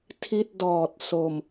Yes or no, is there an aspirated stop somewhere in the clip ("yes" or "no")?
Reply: yes